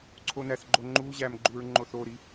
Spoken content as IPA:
ǀʰ o n æ θ ɡ͡ǃ o ŋ͡ǃ u ʑ æ m ɡ͡ǃ u ɹ ŋ͡ǃ o θ o ɾ i

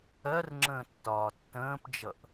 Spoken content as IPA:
ɜ r ŋ͡ǁ ə̃ː tː ɒː tː ə̃ː p d͡ʒ ʌ ʔ

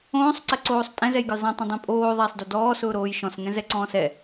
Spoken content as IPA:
õː sˤ ǀ ɛ ǀ oː sˤ tʼ ɛ̃ z ɛ j ɡ ə j zˤ ɛ̃ tˤ õ dˤ ĩ pʼ oː ðˤ ɛː sˤ d o d ɔː s ʊː ɾ oː j ʃ ɔ̃ s ŋ ɛ̃ z ɛ ǀ ɔ̃ː s ɛ

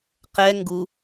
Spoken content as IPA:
q ɛ ŋ ɡ u

